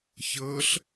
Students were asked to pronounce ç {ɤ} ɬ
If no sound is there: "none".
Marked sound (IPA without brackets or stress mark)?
ɤ